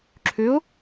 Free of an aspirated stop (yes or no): no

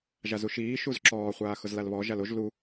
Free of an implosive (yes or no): yes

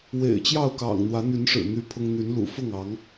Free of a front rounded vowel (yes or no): no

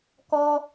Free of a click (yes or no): yes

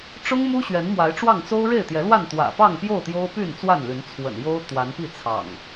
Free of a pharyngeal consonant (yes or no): yes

